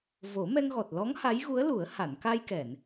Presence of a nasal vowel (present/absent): absent